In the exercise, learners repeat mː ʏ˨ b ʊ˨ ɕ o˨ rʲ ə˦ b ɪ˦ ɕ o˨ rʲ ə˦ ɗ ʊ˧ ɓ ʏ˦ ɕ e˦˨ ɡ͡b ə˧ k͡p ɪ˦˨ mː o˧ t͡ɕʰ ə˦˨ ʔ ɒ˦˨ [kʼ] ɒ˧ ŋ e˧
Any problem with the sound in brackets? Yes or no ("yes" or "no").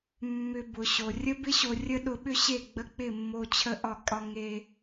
no